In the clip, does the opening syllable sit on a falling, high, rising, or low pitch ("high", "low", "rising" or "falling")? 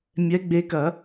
rising